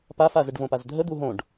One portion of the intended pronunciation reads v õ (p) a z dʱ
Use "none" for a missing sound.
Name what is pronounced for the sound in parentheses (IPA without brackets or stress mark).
p